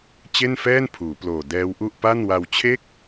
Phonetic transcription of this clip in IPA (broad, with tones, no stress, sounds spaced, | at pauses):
t͡ɕ e˥˩ n f ɛː˥˩ n pʰ uː˩˦ p l oː˨˩ d ɛː˦˥ w ʔ u˥˩ ʔ p a˥˩ n w a˧ w t͡ɕʰ e˥˩ k̚